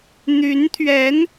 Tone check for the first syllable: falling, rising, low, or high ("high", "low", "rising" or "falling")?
rising